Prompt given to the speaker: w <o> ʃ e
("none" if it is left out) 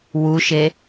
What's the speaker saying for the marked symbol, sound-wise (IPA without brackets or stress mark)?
u